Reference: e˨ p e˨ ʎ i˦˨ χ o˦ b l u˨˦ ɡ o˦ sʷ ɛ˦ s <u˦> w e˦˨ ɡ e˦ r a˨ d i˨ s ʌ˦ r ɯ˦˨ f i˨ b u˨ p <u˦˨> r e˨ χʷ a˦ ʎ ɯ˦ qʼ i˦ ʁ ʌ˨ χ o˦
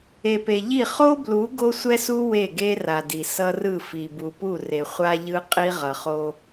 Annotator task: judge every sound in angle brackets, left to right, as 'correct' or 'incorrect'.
correct, correct

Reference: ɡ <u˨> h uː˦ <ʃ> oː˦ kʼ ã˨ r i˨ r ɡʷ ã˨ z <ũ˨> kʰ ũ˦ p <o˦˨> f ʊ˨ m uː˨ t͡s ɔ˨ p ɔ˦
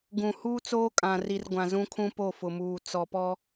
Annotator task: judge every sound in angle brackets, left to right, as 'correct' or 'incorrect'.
incorrect, incorrect, incorrect, correct

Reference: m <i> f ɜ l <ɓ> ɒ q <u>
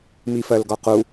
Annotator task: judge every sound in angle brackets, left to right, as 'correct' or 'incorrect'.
correct, incorrect, correct

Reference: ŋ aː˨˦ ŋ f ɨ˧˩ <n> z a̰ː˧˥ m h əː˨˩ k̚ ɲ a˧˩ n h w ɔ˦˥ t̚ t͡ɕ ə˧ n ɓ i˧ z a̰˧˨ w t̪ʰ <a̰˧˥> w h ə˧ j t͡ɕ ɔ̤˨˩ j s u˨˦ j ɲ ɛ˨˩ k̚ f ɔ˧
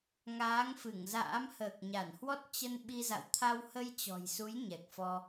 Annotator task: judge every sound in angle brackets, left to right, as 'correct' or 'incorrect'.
incorrect, incorrect

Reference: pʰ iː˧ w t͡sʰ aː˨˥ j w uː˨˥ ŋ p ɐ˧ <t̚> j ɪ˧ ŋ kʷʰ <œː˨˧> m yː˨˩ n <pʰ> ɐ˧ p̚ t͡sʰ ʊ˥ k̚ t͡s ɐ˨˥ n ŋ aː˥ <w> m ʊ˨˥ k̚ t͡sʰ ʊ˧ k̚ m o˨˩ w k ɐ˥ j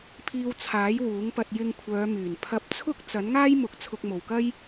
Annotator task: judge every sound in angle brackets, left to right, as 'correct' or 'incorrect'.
correct, correct, correct, incorrect

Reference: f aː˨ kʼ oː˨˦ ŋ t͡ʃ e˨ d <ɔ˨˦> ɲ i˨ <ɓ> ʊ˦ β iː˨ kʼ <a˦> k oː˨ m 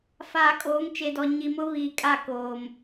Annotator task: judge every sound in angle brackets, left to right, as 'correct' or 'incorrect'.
incorrect, incorrect, incorrect

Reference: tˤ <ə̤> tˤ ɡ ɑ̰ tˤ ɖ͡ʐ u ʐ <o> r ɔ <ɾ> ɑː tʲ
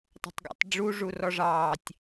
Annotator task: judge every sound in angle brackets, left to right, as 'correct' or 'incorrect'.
correct, incorrect, incorrect

